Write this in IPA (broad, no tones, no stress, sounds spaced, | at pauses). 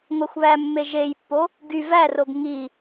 ŋʷ æ xʷ β æ mː e ʒ e j pː o | ɡ y v æ r o ɡ ŋ i